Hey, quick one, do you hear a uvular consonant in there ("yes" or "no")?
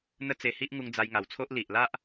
no